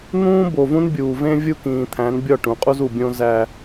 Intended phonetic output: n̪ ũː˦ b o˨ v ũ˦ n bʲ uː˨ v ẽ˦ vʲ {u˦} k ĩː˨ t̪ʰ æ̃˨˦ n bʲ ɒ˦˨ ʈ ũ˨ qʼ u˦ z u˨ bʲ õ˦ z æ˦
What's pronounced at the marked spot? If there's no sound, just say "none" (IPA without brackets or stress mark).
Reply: u˦